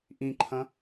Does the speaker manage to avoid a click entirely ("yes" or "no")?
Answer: no